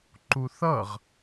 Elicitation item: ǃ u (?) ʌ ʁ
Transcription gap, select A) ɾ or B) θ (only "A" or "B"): B